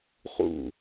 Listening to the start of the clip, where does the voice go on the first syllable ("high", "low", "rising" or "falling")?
falling